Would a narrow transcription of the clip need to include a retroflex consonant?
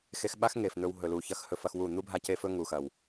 no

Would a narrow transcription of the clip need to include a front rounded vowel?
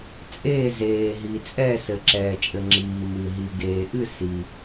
no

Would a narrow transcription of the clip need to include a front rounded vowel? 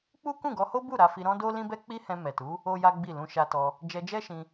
no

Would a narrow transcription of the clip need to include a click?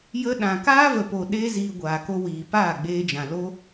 no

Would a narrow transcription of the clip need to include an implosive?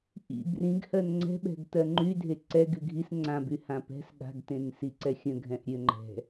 yes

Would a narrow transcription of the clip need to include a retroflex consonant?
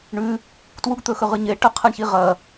yes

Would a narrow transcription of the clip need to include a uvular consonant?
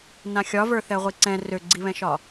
yes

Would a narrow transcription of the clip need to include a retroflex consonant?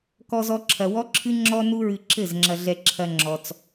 no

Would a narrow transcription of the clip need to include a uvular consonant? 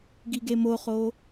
yes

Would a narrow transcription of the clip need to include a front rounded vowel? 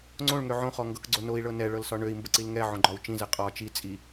yes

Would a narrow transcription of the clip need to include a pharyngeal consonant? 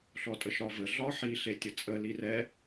yes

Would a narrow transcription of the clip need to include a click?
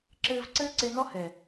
yes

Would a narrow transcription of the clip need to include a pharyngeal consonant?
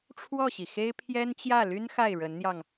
no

